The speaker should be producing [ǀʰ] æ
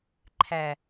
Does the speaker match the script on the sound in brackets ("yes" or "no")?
no